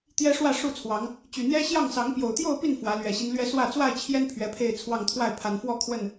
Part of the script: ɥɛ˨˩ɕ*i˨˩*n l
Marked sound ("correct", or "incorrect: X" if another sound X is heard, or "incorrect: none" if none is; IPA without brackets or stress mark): incorrect: i˦